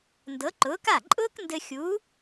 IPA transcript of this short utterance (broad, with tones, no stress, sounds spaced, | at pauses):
n d ɤ˨˥ ǃ ʊː˨˥ k a˥˩ ǃʼ ʊː˥ k n d ɘ˧ xʲ u˨˥